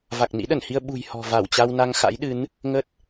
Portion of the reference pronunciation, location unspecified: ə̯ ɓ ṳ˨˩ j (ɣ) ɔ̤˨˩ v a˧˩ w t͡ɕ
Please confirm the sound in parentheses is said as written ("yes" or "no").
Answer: no